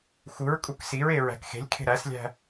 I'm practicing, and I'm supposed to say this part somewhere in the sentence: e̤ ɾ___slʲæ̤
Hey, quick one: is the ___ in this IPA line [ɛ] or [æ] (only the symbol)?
æ